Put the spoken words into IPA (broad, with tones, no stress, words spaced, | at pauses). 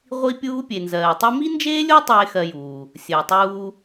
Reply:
ʁʷi˥pʲuː˥ pʲe˨nzɜː˨tˤi˥ mi˥nd͡ʒeː˥lʲo˥ tˤeː˥xɜ˦juː˨ | sʲəː˩tˤuː˦